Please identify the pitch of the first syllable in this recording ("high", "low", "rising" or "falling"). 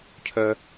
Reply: low